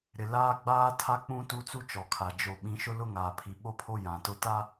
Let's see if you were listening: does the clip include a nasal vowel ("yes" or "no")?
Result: yes